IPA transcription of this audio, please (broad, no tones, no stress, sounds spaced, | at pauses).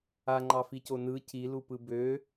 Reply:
a ŋ͡ǃ ɑ f i c o n ɯ c i l u p ɯ b ø